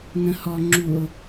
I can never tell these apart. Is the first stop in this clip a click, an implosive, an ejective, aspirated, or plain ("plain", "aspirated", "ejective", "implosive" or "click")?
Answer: click